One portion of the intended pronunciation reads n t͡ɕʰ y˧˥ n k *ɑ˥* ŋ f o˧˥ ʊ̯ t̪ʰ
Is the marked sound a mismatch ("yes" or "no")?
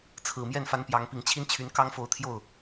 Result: no